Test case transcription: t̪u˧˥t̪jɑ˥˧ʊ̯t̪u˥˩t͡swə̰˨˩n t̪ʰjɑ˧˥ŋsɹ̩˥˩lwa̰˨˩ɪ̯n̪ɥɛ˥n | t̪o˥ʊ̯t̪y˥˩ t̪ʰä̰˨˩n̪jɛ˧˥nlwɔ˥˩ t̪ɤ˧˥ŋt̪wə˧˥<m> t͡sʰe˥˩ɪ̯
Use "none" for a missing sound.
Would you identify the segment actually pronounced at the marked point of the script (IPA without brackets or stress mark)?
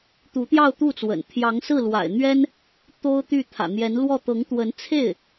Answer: n